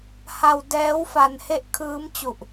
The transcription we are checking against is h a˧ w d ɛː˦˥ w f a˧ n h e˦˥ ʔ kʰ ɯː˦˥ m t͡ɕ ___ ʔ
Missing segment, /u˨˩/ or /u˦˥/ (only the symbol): u˨˩